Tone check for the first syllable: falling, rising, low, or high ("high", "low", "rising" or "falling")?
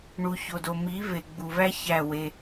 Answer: low